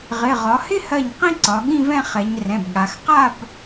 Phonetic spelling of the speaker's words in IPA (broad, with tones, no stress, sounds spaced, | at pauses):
ʁ ɪ˩˧˩ ʁ ɒ˩˧ h ɪ˥˧ h ɜ˧˩ ɲ q ĩ˥˧ ǀ ɒ˩˧ ɠ ĩ˥˧ v ɛ̃˥˧ χ ɛ˩˧ ɲ r ɛ̃˩˧˩ b ɠ a˩˧ x q a˥˧ b